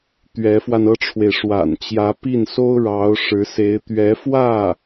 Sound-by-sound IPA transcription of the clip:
t̪ɥɛ˧˥fwa˧nɤ˥ʈ͡ʂʰwe˨ɪ̯ ʂwa̰˨˩nt͡ɕjä˧˥pi˥˩nso˥ʊ̯ ɻɑ˧˥ʊ̯ʂɻ̩˧˥se˧˥ɪ̯ t̪ɥɛ˧˥fwä˥˩

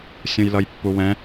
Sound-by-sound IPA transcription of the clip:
sʲũjlʌjpːuwɛ̃

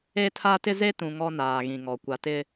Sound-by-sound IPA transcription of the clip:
e˦tʰa˦ tɪ˦ze˦tũ˨ ŋɔ˦naː˨ɣĩ˨ŋɔ˨ kʷa˨tɪ˦

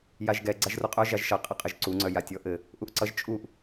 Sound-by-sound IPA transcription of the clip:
jaʒɡɛ ɡ͡ǀaʒruqʼœ ʒaʒʃʌ qʼɘqʼɘʒǀuŋ͡ǀœ jatʲɔʔɘ | ʔuʔǀʌʒ t͡ʃʼuʔ

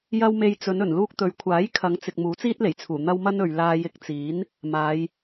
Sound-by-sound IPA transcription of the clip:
jɐ˥w me˧jt͡sɵ˨˧n ɵ˨˩nluː˧k̚t̪ɵ˨ɥkʷʰaː˨˥j kʰɐ˨˧ŋt͡sɪ˨k̚ muː˨˥t͡siː˥t̚le˨˩jt͡sʰuː˨˩ n̪ɐ˥wmɐ˥nɵ˨ɥ laː˧jɪ˧k̚t͡siː˨˥n | maː˨˧j

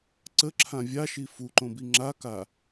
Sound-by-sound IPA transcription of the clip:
ǀəǁʰã vʲaʃi fuǃõbi ŋ͡ǁaka

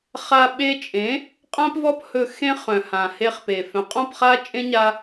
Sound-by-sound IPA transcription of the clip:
χa˧ ɓe˦ t͡ʃʼẽ˨˦ | qʼã˦pvɔ˦p hɵ˧ xẽ˦χœ̃˨hã˨ he˧χpe˨ fœ̃˨qʼɔ̃˦˨pχa˦t͡ʃʼẽ˦ ɲa˦

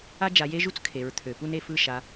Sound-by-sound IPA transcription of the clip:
a˦d͡ʒa˩˧je˦ʒu˦t͡s kʰe˩˧ɹt̪ʰø˩˧pu˦n e˩˧fɯ˦˨ʃa˩˧

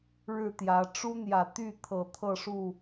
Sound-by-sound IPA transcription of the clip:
ɻɻ̩˥˨t̪jä˨˦ ʈ͡ʂu˦n̪jä˨˩t̪y˥˨ t̪ʰɤ˨˩t̪ʰɤ˥˨ʂu˥˨

